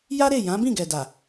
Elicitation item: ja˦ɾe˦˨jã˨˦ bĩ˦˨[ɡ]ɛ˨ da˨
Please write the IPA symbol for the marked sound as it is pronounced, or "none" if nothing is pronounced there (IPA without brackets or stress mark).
ɡ